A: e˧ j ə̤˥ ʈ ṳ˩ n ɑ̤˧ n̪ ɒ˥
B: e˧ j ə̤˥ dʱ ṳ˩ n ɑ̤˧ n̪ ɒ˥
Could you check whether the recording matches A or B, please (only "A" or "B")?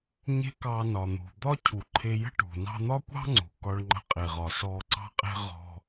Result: A